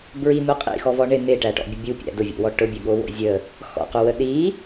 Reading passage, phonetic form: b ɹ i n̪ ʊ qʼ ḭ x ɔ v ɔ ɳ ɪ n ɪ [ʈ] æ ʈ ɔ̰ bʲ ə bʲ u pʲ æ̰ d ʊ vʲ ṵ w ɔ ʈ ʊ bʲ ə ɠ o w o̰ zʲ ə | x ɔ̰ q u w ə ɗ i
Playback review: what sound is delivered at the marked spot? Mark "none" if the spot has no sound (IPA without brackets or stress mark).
ʈ